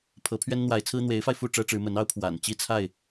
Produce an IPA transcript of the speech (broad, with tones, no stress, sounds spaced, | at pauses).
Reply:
pʰ ɤ˨˦ pʰ ɥ ɛ˦ n n̪ w a˨˦ ɪ̯ t͡sʰ ɹ̩˦ n̪ w e˨˦ ɪ̯ f a˧ ɪ̯ f u˥˨ ʈ͡ʂ ɤ˦ ʈ͡ʂ ɻ̩˨˦ m ə˨˦ n ɑ˦ ʊ̯ pʰ w a̰˨˩ n t͡ɕ i˥˨ t͡sʰ a˥˨ ɪ̯